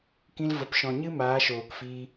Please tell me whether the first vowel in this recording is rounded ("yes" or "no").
no